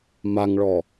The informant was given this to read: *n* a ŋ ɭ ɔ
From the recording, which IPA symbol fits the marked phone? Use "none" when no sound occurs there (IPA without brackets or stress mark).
m